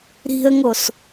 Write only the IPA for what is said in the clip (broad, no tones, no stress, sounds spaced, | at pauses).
ɾ i̤ ə̯ ŋ o s